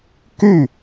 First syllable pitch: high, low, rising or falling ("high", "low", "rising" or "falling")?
falling